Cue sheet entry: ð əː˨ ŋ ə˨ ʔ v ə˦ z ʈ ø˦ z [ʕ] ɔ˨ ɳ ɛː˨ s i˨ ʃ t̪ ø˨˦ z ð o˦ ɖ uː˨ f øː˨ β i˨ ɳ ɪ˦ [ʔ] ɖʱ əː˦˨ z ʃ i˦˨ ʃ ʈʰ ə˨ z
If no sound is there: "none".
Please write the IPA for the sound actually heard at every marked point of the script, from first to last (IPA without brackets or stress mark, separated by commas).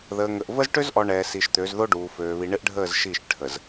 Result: ʔ, ʔ